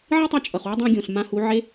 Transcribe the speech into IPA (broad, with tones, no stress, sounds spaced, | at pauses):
ʕ i˥ tˤ ʌ˧ t͡ʃʼ ʌ˩ χ w ʌ˥ dˤ ã˧ ɡʲ õ˩ ɬ m ã˧ h u˩˧ ʕ e˧˥